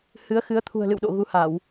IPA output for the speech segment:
h ɨ˨˦ ə̯ x ɨ˨˦ ə̯ t̪ʰ ṳ˨˩ ə̯ l ɨ̰˧˨ w ɗ o̰˧˨ ɣ u˨˦ h a˧˩˨ w

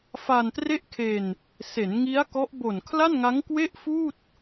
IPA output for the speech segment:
f a˧ n t r e˥˩ ʔ kʰ e˧ n | s e˩˦ n ŋ i˦˥ a̯ k ɔ˦˥ ʔ b o˨˩ n kʰ l a˥˩ n ŋ a˦˥ ŋ k w e˥˩ ʔ f uː˥˩ t̚

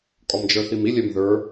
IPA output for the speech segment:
kʼ ɔ m d͡ʒ ə˞ θ i m i lʲ ɛ m ð ə˞

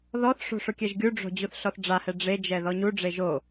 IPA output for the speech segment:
ð ɔ θ ʂ o̤ ʂ ʊ kʲ ɛ ʒ ɡʲ u ɖ͡ʐ o̤ d͡ʑ u θ ɬ ɔ θ ɖ͡ʐ a h ɛ ɖ͡ʐ e d͡ʒ ɛ ð ɔ ɲ u ɖ͡ʐ e ʒ o

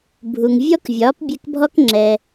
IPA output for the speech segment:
bʱ u˩ ŋ vʲ ɔ˥ k vʲ ɒː˩˥ p bʲ ɛ˧ k bʱ ɔ˥ k ŋ͡ǁ ɛ˩

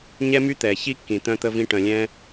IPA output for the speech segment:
ɲ ɛ˥ m y˥ t̪ ɛː˩ ç i˥ kː ĩ˩ t̪ œ̃˧ t̪ ə˧ v ĩ˧ ʈ œ̃˩ lʲ ɛ̃ː˧

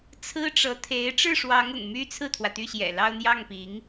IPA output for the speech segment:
t͡sʰ ɹ̩˥ ʈ͡ʂ ɤ˧˥ t̪ʰ e˧˥ ɪ̯ ʈ͡ʂ ɻ̩˥˩ ʂ w ɑ˧˥ ŋ ʊ̰˨˩ ŋ m y˥ t͡sʰ ɹ̩˥˩ t̪ʰ w ä˩ t̪ y˥˩ ɕ j ɛ̰˨˩ l ɑ˥˧ ʊ̯ n̪ j ɑ˥˩ ŋ p i˧˥ ŋ

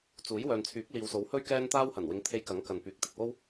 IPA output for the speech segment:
t͡s uː˨˥ j w œː˨ n t͡sʰ yː˨˥ k̚ l iː˨ w s o˨˥ w h ɵ˥ ɥ k ɛː˥ n t̪ aː˥ w h ɐ˨˩ n w ɪ˨˧ ŋ t̪ʰ e˧ j k ɐ˨˥ ŋ k ɐ˨ n p yː˨˥ k̚ t̪ ɪ˨ k̚ w o˥ w

